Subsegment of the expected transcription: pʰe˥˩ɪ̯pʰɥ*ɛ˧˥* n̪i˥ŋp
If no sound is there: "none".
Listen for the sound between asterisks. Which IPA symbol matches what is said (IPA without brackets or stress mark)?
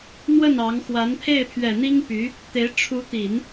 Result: ɛ˨˩